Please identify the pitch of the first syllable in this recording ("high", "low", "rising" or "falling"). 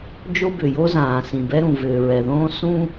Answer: high